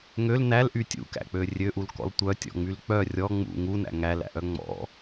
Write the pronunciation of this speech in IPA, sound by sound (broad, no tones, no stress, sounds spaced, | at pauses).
ŋ ø l n æ l ʔ y tʲ ṵ k æ̰ k͡p ø rʲ ø ʔ u l k ɔ̰ l tʷ œ tʲ ɔ̰ ŋ͡m y l k͡p œ rʲ ɔ ŋ͡m ṵ ŋ u n æ̰ ŋ æ l æ̰ ʔ œ ŋ͡m ɔ̰